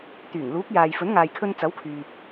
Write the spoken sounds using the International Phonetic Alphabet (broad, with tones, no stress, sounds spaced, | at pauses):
t̪ yː˨˩ ŋ l uː˨˥ k̚ j aː˨ j f ɵ˨˥ n ŋ aː˨ j kʰ ɵ˧ n t͡s ɐ˨˥ w kʰ yː˨ p̚